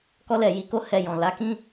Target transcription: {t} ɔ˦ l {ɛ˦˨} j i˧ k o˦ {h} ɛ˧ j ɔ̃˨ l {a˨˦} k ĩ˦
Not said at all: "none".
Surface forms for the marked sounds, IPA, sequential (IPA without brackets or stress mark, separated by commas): k, ɛ˦˨, h, a˨˦